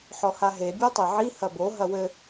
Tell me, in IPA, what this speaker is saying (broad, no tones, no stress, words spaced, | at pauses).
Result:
ħɔhaɦe bʲotˤeʕi hɐbo ɦɐwɘ